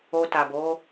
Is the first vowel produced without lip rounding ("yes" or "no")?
no